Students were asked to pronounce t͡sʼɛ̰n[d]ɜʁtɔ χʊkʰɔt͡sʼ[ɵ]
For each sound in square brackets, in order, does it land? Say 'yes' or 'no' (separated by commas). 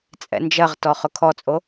no, no